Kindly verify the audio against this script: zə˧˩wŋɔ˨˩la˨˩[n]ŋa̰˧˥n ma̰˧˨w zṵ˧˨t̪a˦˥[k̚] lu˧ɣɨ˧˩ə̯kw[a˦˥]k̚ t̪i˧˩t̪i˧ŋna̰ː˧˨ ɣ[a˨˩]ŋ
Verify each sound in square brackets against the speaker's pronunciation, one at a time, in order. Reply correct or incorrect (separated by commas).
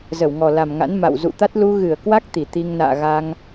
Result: incorrect, incorrect, correct, incorrect